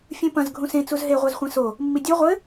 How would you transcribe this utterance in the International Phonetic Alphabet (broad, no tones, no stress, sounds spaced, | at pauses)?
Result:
fʲ ũ p ɐ̃ z ɡʱ ũ s ẽ t͡s u z ɦ e ʁʷ a z χʷ ẽ s o | mː i dʲ u ʁʷ ɘ